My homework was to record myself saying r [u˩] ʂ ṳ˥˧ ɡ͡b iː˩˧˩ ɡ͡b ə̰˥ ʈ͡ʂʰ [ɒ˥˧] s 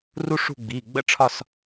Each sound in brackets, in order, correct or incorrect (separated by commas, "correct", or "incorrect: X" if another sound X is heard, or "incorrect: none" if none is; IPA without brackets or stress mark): incorrect: u˥, correct